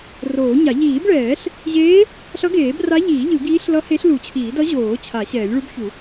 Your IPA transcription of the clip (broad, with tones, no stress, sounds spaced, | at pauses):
r oː˨˩˦ ɲ a˨˩˦ ʎ iː˨˩˦ b ɭ ɛː˨˩˦ ɬ | ʑ eː˧˥ | ɬ ʌ˧˥ ɡ eː˨˩˦ b r a˧˥ ʎ iː˨˩˦ ʎ ɯ˨˩˦ ɡ iː˧˥ ɬ l ʌ˧˥ h e˧˥ ɬ l u˨˩˦ t͡ɕʰ iː˨˩˦ d ʌ˧˥ ʑ oː˨˩˦ t͡ɕʰ a˨˩˦ ɕ ɛː˨˩˦ lʲ ɭ u˧˥ b ç u˨˩˦